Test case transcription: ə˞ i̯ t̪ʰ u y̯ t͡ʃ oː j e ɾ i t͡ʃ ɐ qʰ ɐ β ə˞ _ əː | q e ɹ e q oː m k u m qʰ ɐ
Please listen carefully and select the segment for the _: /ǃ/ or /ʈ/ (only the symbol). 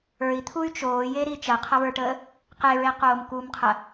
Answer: ʈ